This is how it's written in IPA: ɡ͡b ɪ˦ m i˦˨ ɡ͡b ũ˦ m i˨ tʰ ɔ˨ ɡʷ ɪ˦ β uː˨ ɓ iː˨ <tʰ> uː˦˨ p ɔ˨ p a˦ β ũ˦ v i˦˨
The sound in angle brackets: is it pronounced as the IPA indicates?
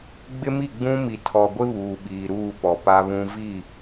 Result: no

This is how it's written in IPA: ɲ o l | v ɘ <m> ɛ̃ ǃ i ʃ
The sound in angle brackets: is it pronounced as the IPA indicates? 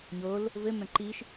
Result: yes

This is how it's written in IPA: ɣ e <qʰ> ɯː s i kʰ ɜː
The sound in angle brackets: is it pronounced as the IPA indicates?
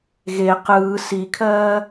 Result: no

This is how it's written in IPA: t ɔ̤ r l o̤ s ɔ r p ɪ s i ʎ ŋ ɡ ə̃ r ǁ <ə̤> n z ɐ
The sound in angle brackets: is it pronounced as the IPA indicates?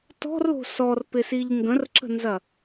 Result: yes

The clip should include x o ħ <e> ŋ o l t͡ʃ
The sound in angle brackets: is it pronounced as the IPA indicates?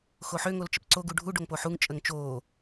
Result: no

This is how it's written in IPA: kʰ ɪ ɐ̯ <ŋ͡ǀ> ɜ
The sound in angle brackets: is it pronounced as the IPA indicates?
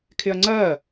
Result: yes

